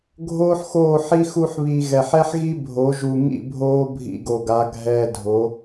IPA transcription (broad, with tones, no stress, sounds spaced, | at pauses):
ɡʱ oː˦ ħ x oː˦˨ ħ i˦ x u˧ ħ β i˨ ɣ ɛ˨ ħ ɛ˦ ħ ɣ i˦ bʱ o˨˦ ʒ u˨ ŋ ḭ˦˨ bʱ oː˦ bʱ ḭ˧ ɡ o˨ ɡ a˨˦ ɡʱ ɛː˧ dʱ o˨˦